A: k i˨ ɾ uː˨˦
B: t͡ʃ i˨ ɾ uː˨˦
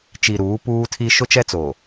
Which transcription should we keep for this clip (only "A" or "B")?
B